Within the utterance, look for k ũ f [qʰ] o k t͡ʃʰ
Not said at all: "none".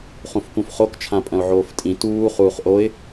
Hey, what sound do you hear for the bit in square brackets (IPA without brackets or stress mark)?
χ